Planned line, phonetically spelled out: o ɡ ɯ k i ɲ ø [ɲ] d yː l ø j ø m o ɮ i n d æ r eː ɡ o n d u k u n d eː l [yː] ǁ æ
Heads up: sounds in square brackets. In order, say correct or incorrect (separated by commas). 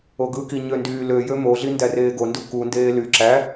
incorrect, incorrect